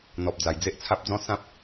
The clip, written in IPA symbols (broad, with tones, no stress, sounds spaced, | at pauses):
n̪ ɔ˨ p̚ d͡z a˨˩ j d͡z e˦ ʔ t͡sʰ a˦ p̚ d͡z ɔ̃˦ s ã˦ p̚